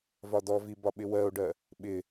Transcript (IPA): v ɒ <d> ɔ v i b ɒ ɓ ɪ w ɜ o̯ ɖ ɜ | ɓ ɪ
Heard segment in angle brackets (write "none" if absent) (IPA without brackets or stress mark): d